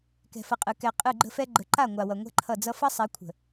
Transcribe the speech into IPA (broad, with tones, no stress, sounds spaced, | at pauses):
k ɛ̤˨ f ʌ˨ qʼ ɯ˨ k ɛ˨ qʼ ɯ˦˨ ɡ͡ǃ ə̤˦ f ɛ˦ ɡ͡ǃ ə˨ ǃ a˦˨ ŋʷ a˨ w ʌ˨ ŋʷ ɛ̤˦ ǃʰ ʌ˦˨ d͡z ʌ˦ f ʌ˦ sˤ ɛ˨˦ kʷʰ ə̤˨